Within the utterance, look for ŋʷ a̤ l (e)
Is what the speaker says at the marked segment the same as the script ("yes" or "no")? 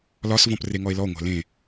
no